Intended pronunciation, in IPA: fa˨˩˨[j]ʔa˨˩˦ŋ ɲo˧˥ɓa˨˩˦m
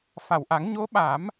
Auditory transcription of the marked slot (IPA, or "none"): w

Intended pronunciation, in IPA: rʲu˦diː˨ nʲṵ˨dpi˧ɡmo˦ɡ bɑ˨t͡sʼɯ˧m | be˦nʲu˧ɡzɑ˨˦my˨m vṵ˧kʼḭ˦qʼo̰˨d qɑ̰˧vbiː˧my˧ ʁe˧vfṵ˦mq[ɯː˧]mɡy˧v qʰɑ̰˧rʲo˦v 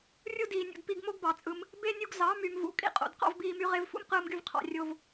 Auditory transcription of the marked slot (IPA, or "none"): ɯː˧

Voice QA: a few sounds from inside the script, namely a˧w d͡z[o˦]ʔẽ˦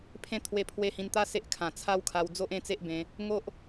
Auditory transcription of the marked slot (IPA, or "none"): o˦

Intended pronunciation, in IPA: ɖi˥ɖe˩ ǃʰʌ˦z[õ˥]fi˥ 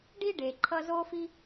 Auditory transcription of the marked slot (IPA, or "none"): o˥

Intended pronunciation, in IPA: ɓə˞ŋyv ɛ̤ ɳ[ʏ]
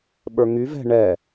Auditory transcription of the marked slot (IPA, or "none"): ɛ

